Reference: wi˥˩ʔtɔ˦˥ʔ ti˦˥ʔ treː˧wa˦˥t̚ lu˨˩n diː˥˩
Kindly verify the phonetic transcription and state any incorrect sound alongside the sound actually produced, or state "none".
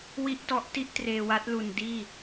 none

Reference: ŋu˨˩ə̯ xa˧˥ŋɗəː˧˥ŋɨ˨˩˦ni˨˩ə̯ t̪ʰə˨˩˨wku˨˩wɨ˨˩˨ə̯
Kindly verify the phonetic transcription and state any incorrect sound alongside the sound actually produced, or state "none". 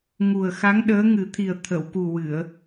n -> t̪ʰ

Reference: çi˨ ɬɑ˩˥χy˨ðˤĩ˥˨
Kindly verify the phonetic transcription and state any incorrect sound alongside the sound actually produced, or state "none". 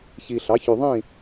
χ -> ç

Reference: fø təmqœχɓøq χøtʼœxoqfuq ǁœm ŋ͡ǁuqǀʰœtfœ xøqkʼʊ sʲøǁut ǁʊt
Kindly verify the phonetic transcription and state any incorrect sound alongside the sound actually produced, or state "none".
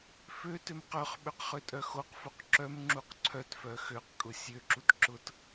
ə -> ø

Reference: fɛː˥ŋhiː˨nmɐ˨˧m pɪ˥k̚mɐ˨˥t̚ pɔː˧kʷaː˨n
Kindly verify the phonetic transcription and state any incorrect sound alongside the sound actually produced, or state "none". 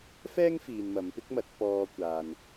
h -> f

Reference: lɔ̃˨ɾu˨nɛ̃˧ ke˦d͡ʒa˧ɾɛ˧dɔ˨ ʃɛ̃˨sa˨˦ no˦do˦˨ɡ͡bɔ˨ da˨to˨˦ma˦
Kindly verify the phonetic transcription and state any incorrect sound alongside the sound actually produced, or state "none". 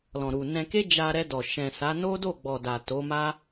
none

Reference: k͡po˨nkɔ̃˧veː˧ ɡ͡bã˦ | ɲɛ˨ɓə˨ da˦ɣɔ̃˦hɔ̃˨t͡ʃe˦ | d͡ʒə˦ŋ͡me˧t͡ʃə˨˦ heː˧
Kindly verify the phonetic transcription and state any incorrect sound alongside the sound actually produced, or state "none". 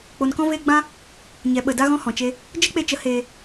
ŋ͡m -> k͡p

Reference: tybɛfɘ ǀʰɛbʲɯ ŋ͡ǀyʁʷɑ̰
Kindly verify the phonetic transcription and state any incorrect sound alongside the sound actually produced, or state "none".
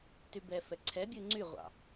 ɘ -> ɛ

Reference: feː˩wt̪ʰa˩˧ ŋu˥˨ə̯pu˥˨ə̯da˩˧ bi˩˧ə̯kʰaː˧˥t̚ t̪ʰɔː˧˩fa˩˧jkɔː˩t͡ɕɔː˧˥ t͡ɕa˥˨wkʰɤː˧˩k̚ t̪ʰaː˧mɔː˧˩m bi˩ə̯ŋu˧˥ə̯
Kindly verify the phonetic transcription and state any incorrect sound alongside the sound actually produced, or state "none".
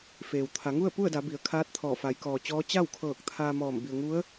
none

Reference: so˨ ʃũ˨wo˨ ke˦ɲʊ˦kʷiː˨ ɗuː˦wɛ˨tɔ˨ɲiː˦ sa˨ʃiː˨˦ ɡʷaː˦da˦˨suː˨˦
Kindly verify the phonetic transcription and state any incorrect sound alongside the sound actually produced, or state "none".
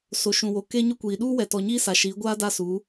none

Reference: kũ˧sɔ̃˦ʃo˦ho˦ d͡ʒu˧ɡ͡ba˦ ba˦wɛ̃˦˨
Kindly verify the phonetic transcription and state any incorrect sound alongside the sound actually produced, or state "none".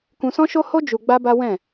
none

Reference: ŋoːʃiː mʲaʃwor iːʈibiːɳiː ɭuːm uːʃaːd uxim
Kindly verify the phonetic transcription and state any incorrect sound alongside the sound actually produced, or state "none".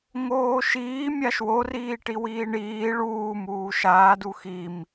b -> w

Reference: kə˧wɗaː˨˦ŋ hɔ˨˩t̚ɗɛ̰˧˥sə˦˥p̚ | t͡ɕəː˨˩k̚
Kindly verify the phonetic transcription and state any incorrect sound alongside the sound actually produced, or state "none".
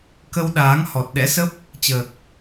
none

